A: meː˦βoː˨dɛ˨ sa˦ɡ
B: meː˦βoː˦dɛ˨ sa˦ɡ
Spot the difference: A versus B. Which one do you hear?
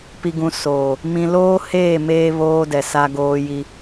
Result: B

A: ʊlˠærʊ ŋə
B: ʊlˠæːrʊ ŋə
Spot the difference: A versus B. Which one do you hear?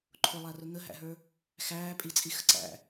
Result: A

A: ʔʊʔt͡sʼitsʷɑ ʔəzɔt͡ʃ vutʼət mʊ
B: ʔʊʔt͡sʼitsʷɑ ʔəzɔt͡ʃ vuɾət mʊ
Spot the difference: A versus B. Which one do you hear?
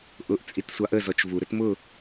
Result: B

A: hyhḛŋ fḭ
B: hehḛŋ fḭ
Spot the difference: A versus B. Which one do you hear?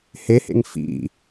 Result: B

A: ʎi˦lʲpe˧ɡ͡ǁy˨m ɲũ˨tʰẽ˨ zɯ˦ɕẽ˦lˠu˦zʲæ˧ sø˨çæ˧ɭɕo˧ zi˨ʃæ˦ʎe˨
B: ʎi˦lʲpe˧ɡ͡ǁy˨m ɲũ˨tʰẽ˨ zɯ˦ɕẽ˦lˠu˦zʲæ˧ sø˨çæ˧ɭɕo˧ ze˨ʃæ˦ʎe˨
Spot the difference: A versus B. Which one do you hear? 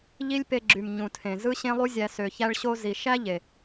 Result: A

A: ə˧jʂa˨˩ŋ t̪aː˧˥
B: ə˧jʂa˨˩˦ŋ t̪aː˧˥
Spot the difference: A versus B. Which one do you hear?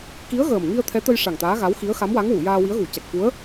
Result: A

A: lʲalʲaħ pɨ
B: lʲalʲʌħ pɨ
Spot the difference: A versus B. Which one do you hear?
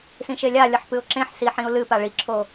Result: B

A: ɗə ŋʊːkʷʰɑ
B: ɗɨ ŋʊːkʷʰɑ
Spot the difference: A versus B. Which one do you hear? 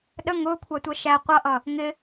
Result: A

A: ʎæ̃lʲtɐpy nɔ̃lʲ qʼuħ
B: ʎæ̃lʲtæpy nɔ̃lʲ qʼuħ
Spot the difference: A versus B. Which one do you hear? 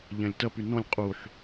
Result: A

